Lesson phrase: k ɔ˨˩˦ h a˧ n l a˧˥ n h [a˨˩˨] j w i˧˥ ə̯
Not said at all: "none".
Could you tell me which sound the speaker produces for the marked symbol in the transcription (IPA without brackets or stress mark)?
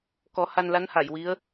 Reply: a˨˩˨